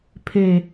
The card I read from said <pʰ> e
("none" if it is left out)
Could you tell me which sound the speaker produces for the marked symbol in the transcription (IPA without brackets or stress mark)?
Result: pʰ